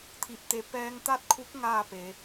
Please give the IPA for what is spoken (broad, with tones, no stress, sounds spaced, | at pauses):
t̪ʰ i˧˩ p̚ t̪ e˧˩ p ɛː˧ ŋ t̪ a˥˨ t̚ kʰ u˧˥ k̚ ŋ aː˥˨ p e˩˧